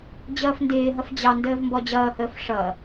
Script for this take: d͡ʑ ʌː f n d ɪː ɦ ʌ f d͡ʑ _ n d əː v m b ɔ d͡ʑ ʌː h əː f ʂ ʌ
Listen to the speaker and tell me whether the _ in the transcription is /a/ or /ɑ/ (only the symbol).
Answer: ɑ